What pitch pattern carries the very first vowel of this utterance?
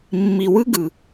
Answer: low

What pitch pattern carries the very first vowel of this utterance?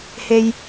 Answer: low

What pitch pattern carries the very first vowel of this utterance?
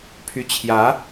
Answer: rising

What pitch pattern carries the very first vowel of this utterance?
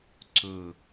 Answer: falling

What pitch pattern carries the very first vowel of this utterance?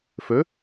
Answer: rising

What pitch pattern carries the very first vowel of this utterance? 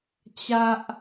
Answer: high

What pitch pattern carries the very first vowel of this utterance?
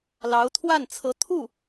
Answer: rising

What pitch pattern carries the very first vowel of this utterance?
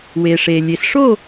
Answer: low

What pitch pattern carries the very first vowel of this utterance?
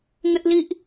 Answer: high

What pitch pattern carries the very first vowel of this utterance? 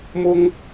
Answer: high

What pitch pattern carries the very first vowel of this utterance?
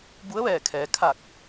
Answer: rising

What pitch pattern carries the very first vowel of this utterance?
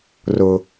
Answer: low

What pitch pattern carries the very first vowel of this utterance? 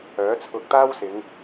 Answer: rising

